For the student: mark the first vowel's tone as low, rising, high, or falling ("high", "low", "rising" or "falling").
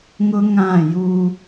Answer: high